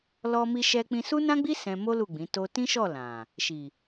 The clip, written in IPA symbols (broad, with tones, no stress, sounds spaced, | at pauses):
l ɔ˧ m i˧ ʃ ɛ˧ k͡p ĩ˧ s u˦ n ã˦ ɡ͡b i˦ s ɛ̃˧ m o˦ l u˦˨ ɡ͡b ĩ˨˦ t o˦ t ĩ˦ ʃ ɔ˦˨ l ã˨ | ʃ i˨